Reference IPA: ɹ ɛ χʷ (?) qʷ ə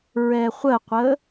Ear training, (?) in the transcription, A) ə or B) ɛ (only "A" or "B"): A